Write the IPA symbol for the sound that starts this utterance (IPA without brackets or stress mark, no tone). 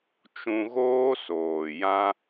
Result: t͡ʃ